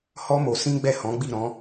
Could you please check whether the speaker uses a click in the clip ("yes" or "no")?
no